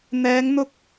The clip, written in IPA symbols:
n̪ ɛː˨˧ ŋ n̪ ʊ˧ k̚

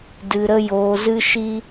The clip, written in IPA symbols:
d ɨ˨ ɾ ə˧ j oː˨ z ɨ˧ ʃ i˧

